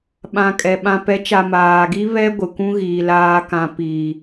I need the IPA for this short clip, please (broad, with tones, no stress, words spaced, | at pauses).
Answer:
ɓã˨kʼɛ˨ ɓã˨pɛ˨˦t͡ʃa˨ maː˨ɡi˦ βɛ˦ ɡʷɪ˨kʷũ˦ɣiː˨ laː˨kã˨ pi˨